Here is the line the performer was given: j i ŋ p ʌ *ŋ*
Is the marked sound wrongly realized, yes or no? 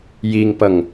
no